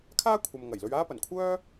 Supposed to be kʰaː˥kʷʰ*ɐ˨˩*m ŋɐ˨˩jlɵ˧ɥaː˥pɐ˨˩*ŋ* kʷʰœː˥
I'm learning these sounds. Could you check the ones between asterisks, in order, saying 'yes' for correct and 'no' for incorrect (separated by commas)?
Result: no, no